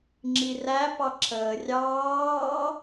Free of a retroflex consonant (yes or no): yes